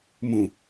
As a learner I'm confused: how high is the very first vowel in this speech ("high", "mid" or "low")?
high